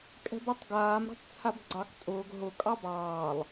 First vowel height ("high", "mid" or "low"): mid